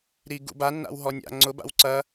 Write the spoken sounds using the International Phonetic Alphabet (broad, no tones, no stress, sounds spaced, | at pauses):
ɾ i ɡ ṵ b a nː a̰ w ɦ ɔ nʲ a̰ ŋ͡ǀ ʊ b a̰ w ǀ ɐ